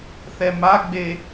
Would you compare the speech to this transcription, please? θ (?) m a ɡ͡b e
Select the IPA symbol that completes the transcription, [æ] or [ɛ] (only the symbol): ɛ